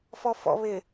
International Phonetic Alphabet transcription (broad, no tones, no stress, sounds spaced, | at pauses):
f ɔ f ɔ̰ β ɪ